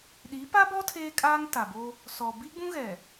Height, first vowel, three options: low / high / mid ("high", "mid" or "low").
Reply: high